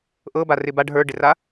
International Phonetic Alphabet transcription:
ʔɤba rɪbaɖ ɦə˞ɖɪra

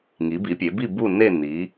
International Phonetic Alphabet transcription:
ŋi˩˧bi˩˧pʲe˩˧bi˦˨ bu˦˨ne˦˨ ni˩˧

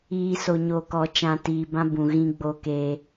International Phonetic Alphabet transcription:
iː˨ so˨ɲoː˨kɔ˨ t͡ʃã˨tiː˨bã˦ bũ˨ɣĩ˦ ɡ͡bo˦keː˦

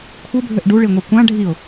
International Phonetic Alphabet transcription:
kʷʰɘbʱɘʔ ɖuɭiŋʷi kʷã ɖʱiʊ̯

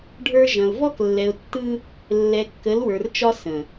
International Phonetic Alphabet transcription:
ɖʱə˞˦ ʒɐ̃˨ʊ̯ vɔ˦klːɛ˨ʊ̯tːɯ˦ | lːɛ˨kːə˨˦lwə˞˨rt͡ʃɒ˦ sə̃˨

